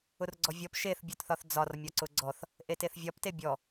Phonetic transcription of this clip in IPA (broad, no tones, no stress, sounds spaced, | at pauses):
ʊ r ɡ͡ǀ ɔ vʲ ɔ p ʃ e θ bʲ ɔ t θ ɒ θ d͡z ɒ r mʲ ɒ ǀ ʊ ɡ͡ǀ ɔ θ | ʔ e t e θ vʲ ɒ p t e bʲ ɔ